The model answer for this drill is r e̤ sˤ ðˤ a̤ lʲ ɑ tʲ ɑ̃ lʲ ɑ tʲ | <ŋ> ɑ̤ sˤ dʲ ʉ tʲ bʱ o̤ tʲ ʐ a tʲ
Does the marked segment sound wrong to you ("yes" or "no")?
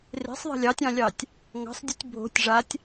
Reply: no